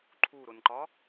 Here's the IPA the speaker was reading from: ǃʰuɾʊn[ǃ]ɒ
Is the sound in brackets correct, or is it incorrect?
correct